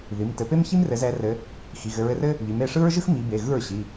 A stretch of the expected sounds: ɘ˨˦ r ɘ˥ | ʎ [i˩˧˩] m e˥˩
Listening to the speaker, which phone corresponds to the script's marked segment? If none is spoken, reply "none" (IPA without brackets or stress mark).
i˩˧˩